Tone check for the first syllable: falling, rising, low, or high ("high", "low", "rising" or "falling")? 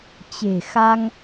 low